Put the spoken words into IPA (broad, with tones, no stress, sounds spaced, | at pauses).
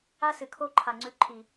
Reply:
a˦ s ɨ˨ kʰ o˦ ǃʰ a˨ ŋ͡ǀ ʉ˧ ǃʰ i˨